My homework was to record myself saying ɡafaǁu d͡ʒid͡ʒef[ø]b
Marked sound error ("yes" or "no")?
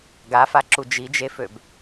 no